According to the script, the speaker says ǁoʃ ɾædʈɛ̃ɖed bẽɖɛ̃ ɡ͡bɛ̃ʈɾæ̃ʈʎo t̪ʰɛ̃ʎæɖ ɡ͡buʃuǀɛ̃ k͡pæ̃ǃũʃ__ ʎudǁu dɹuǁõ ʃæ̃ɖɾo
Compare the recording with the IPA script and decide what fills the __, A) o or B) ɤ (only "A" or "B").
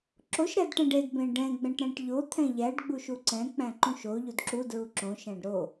A